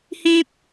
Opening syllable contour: high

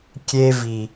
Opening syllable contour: high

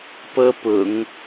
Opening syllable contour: high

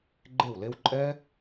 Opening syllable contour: falling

